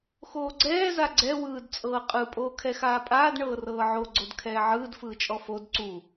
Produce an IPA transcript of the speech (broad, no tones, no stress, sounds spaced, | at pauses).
x oː ɡ͡ǀ ɛː z a ɡ͡ǀ ɛ w ɯː d t͡sʼ ɤː qʼ ɯ pʼ oː kʰ ɛ x aː pʼ aː d ɳ ɤː r ɤː ʕ o ɡ͡ǀ o d kʰ ɛː ʕ ɯː d f ɯː t͡ʃʼ ɔ f o d ǀ u